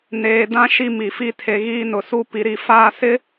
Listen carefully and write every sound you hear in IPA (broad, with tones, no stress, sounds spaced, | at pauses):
n eː˨ d ã˦ ʃ i˦ m i˨ f i˦ tʰ e˨ ɣ iː˦ n ʊ˨ s u˦ p i˨ ɾ i˨ f aː˦˨ s ɪ˦